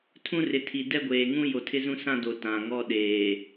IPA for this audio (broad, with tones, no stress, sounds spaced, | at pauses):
tʰ ũ˦ r ɪ˨ tʰ i˨ d ɛ˦ ɡʷ eː˨ ŋ ũ˦ j o˨ tʰ ɪ˦ z ũ˦ s ã˦ d o˨ t ã˨ ŋ ɔ˦ ɗ eː˨